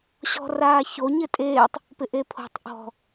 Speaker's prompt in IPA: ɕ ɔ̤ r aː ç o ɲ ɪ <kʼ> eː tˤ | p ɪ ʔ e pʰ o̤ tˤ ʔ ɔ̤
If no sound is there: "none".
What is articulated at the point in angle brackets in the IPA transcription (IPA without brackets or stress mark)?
tʼ